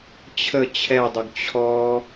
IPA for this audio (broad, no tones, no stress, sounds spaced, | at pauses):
t͡ɕʰ ə t͡ɕʰ ɛ dˤ ʊ ɡ t͡ɕʰ ɔ